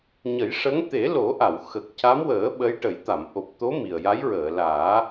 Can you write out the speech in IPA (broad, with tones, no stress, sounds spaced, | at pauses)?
ɲ ə˨˩˦ j ʂ ə˧˥ ŋ t̪ e˨˩˦ l o˨˩˦ ʔ a˨˩˨ w x ə˨˩ k̚ c a˧˥ m w əː˨˩˦ ɓ ə˧˥ j ʈ ə˨˩˦ j t̪ a˨˩˨ m ʔ o˨˩ p̚ t̪ o˧˥ m i˨˩ ə̯ j a˧˥ j ɹ əː˨˩˨ l aː˨˩˦